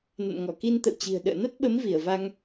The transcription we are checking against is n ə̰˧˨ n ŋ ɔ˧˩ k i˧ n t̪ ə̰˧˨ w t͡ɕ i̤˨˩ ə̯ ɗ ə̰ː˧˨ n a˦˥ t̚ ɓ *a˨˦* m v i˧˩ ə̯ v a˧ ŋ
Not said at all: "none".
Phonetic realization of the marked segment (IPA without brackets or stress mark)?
ə˨˦